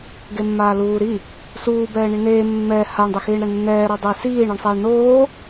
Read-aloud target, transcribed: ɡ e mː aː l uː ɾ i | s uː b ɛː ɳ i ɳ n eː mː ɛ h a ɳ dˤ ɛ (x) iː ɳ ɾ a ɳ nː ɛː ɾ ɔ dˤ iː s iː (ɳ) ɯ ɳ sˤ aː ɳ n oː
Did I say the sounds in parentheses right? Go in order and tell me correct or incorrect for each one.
correct, correct

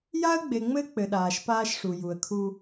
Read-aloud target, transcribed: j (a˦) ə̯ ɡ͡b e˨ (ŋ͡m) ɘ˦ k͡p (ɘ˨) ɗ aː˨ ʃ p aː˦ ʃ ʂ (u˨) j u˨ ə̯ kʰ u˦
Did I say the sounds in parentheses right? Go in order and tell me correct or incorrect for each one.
correct, correct, correct, correct

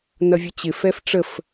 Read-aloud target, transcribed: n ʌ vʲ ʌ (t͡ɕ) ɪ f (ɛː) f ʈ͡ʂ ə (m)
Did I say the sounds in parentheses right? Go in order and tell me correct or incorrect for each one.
correct, incorrect: ɛ, incorrect: f

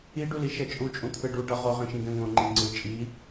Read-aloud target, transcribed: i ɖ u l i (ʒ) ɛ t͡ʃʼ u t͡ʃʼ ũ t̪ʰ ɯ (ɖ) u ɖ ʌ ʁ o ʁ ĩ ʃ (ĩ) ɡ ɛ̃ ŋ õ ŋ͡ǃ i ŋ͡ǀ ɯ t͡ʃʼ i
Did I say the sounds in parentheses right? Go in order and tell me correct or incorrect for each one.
incorrect: ʃ, correct, correct

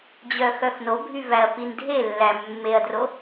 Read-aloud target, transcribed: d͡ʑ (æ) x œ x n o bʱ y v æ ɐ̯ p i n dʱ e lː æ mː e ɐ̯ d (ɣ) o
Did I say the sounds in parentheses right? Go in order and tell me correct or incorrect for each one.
incorrect: œ, incorrect: r

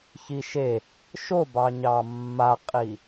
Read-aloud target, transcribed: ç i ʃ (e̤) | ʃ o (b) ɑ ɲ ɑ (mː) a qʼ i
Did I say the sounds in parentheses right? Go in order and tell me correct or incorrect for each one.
incorrect: e, correct, correct

